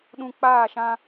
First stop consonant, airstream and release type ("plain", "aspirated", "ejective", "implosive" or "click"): implosive